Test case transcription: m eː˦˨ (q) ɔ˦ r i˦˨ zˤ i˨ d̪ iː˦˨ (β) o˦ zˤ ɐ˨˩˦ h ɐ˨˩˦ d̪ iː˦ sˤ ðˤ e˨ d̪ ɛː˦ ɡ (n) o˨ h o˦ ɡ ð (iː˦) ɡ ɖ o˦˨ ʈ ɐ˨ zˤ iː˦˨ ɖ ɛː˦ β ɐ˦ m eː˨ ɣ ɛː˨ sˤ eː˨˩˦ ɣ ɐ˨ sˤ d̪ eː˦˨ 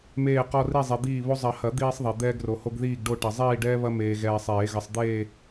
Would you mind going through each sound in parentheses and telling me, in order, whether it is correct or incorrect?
correct, correct, incorrect, incorrect

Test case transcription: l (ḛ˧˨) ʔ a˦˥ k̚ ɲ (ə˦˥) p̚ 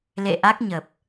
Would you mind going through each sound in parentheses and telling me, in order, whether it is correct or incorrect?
correct, incorrect

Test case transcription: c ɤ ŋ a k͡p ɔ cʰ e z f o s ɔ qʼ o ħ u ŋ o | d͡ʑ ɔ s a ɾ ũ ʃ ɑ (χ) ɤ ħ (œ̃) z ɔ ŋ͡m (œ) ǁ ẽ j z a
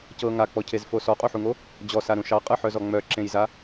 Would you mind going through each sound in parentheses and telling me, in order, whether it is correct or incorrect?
incorrect, incorrect, correct

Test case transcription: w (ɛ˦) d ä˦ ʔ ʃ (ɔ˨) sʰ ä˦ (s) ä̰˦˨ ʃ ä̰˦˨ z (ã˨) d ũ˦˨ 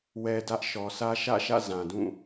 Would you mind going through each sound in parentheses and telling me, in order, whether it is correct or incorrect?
correct, correct, incorrect, correct

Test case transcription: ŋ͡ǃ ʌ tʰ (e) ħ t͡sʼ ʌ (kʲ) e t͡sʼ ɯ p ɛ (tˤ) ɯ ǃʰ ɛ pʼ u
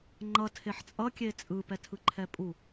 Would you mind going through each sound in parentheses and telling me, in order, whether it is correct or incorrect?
correct, correct, incorrect

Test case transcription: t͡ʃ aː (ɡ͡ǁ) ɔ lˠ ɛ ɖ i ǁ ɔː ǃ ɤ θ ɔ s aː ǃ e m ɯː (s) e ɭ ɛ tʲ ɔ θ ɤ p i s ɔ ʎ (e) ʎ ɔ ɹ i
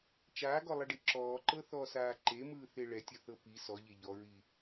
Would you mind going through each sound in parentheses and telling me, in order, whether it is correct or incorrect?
incorrect, incorrect, correct

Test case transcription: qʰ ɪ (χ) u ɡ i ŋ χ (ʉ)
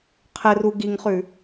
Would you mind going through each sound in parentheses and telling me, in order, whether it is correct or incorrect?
incorrect, correct

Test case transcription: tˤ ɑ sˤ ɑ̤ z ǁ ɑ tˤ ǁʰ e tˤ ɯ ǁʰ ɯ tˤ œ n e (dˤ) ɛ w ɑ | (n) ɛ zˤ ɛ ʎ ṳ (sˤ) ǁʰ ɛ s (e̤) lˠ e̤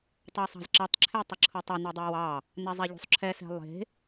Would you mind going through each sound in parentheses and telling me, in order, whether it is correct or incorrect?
correct, correct, correct, incorrect

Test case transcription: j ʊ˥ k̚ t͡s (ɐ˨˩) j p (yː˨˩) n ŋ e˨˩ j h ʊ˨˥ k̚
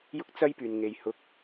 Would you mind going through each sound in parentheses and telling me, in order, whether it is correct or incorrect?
incorrect, correct

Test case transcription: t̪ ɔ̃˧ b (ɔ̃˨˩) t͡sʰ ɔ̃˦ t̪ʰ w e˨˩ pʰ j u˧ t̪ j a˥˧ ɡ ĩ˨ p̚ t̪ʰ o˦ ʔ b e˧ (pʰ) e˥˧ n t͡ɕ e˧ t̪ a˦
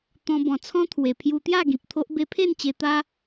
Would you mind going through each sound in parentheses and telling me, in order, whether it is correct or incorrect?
correct, correct

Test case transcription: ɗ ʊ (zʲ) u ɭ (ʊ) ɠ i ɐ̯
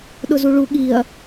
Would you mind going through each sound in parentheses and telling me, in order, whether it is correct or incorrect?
incorrect, incorrect

